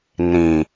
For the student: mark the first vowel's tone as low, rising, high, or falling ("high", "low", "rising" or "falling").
low